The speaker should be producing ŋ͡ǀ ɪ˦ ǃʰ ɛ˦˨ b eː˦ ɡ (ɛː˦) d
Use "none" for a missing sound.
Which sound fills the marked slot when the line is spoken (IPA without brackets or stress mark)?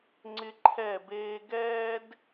ɛː˦